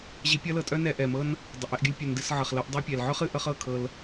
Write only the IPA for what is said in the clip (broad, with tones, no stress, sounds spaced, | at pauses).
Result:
ʑ i˧ pʲ ʌ˦ l ɤ˧ tʼ œ˦ n ɛ˧ ʔ ɛ˨ m ɤ˦ n | dˤ œ˨ ʔ ɛ˦˨ ʔ ɡʲ ʌ˧ lʲ pʲ œ˨ n d ɨ˨ s ʕ ʌ˨ χ l ɤ˧ ʔ dˤ i˧ pʲ ɛ˨ l ʕ œ˦ χ ɨ˧ ʔ ʌ˧ χ ɤ˦˨ kʰ ɤ˧ l